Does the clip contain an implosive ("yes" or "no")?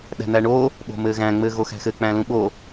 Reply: yes